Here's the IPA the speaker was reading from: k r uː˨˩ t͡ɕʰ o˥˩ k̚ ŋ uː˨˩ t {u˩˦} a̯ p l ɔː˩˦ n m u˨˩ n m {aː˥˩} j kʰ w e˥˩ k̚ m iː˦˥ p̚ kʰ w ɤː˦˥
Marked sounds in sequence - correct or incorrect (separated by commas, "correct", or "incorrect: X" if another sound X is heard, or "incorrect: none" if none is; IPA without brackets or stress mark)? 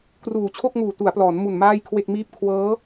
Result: correct, correct